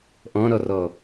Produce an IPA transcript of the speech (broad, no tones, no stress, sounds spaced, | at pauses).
ʔ ɔ̃ ɾ ɔ r ɔ